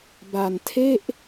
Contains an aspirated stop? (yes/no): yes